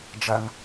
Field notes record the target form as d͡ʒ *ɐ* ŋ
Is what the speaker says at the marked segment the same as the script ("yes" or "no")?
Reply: yes